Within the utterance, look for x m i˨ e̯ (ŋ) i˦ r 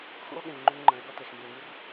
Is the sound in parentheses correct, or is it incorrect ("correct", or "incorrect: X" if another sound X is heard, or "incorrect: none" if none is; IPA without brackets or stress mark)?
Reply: correct